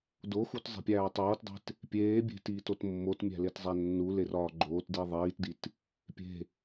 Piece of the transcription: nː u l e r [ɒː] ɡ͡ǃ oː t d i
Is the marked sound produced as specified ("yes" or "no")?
yes